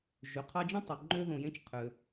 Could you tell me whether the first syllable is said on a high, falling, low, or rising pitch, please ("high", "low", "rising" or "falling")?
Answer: low